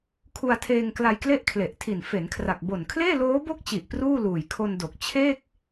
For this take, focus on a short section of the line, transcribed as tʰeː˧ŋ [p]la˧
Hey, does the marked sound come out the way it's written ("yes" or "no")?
no